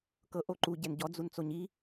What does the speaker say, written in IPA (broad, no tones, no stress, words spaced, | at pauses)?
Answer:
kɤʔo ǃuɟɛn ɟɔd͡zun t͡soɲi